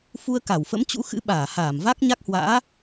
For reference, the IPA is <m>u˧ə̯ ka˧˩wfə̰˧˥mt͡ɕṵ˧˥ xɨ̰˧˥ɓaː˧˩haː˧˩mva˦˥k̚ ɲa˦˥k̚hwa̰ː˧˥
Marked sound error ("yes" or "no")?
yes